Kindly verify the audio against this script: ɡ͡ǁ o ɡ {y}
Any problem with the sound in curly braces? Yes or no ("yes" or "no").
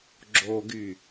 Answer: no